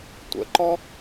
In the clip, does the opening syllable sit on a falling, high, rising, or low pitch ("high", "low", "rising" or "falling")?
low